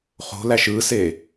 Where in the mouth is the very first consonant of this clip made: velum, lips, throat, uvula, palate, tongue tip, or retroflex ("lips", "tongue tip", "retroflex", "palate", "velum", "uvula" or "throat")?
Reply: uvula